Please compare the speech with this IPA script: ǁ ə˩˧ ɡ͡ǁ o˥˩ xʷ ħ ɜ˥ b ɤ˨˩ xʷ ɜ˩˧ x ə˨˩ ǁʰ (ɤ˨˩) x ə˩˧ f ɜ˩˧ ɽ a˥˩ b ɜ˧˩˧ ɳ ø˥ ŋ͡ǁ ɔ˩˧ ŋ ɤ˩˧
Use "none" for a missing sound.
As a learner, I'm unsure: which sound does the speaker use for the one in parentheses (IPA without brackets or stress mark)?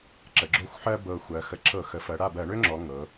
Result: ɤ˧˩˧